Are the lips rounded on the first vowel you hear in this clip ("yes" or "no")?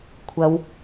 no